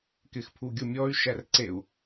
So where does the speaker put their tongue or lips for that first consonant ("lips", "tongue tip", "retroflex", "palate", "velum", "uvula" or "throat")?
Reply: velum